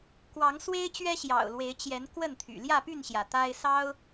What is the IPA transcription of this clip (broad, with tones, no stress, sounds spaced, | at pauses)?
k w ɑ˨˦ ŋ s w e˦ ɪ̯ t͡ɕ ɥ ɛ˦ ɕ j ɑ̰˨˩ ʊ̯ l w e˨˦ ɪ̯ t͡ɕ j ɛ˨˦ n k w ə˥˨ n t̪ʰ y̰˨˩ l j ä˥˨ p y˥˨ n ɕ j ä˩ t̪ a˦ ɪ̯ s ɑ˦ ʊ̯